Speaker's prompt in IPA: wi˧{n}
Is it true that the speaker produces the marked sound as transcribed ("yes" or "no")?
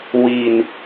yes